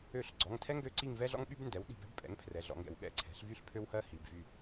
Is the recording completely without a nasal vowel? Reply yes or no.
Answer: yes